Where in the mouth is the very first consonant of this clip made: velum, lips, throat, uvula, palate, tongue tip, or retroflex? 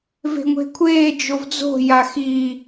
lips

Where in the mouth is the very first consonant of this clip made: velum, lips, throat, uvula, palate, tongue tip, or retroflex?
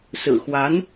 tongue tip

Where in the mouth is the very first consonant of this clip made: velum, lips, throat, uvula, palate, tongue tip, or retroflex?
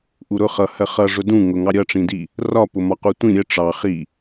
throat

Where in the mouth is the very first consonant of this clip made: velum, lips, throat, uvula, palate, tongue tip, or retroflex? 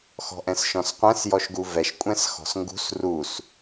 velum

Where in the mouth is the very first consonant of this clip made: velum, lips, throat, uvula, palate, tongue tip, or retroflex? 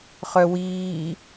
uvula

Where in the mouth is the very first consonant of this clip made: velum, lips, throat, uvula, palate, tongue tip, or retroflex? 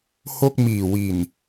throat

